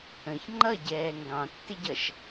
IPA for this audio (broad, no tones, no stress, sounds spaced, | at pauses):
ə̃ ç ŋ͡ǃ ʌ ɟ ɛː ŋ ɡ ɑ̃ tː ɪ ɟ ʌ ʃ